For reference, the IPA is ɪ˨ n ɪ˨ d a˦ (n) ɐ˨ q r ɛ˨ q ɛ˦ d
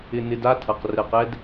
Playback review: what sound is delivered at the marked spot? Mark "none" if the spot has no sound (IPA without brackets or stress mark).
tʰ